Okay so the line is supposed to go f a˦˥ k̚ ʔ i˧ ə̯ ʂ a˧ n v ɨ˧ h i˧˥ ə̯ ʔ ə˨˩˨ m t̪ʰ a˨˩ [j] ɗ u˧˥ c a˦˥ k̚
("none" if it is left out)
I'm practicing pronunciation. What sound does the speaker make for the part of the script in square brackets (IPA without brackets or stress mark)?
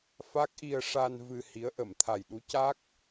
j